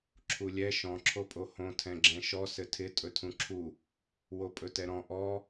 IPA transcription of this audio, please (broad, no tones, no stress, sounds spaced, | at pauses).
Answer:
ǁʰ u lʲ ɛ ʃ ɔ̃ ǁʰ o pʼ o h õ tʰ ɛ̃ ɡ͡ǁ ɛ̃ ʃ ɔ s ɘ tʰ ɪ tʼ ɵ tʰ ũ ǁʰ u | w o pʼ ɵ t ɛ ɾ ɔ̃ ʔ ɔ